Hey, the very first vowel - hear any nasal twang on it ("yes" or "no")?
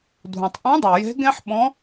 yes